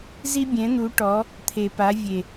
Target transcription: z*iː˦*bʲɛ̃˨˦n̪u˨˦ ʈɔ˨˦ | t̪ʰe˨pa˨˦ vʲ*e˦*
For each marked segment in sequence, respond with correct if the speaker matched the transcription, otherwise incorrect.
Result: incorrect, incorrect

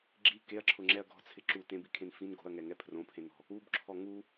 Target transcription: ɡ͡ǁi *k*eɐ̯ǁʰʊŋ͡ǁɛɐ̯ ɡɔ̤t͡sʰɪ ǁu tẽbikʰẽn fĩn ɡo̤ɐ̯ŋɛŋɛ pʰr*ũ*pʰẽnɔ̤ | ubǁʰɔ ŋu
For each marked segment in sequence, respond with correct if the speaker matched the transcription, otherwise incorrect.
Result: correct, incorrect

